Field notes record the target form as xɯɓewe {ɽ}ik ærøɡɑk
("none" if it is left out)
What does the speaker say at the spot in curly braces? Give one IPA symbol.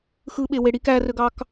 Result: ɽ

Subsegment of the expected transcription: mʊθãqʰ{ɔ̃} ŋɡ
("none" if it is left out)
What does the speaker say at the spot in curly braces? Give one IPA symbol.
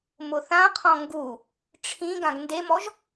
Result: ɔ̃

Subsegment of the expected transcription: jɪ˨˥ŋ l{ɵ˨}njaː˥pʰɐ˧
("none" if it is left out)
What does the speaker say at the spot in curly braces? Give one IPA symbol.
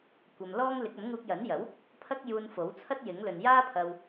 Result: ɵ˨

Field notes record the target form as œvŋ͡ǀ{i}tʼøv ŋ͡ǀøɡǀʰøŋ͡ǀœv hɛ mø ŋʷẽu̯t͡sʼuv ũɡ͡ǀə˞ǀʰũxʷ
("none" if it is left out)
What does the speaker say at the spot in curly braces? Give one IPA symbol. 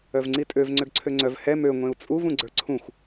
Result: i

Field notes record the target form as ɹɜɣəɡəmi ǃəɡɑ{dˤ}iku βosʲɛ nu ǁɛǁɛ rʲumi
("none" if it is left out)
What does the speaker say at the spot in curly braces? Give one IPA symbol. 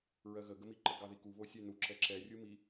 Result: ð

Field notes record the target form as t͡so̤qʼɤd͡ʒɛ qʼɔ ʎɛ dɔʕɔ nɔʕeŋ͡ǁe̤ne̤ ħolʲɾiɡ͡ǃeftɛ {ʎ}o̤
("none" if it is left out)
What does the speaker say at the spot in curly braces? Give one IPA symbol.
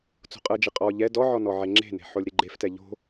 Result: ʎ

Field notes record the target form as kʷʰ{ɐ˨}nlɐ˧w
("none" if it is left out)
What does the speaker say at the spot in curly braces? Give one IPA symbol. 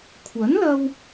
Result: ɐ˨˥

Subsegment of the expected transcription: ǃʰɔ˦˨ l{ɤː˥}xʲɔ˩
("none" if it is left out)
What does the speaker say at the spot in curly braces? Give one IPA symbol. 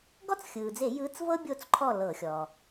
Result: ɤː˧˩˧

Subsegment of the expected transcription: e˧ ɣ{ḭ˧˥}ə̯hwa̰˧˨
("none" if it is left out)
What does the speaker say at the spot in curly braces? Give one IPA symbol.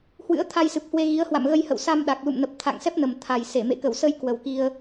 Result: i˨˦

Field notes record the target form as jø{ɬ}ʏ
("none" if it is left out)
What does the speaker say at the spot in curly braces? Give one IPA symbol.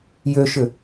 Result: ʃ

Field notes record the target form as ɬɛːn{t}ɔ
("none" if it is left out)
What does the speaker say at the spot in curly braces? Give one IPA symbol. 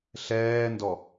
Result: d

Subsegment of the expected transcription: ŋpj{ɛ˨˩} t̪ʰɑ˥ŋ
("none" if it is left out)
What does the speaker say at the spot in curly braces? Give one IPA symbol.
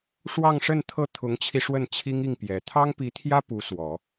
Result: ɛ˨˩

